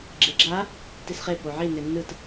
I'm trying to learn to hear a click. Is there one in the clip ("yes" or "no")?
yes